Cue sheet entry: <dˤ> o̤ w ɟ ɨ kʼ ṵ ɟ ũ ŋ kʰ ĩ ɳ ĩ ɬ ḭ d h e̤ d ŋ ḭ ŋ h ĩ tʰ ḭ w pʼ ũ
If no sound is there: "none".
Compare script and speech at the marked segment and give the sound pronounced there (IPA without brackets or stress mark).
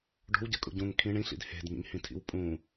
ɖ